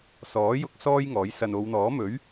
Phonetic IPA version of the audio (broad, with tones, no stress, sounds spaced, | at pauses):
s ɔː˨˥ j ʊ˧ k̚ s ɔː˥ j ŋ ɔː˨˥ j s ɐ˨ n o˨˧ w n̪ ɔː˨˥ m ɵ˨˥ ɥ